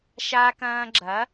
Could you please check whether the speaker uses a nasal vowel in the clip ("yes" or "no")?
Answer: yes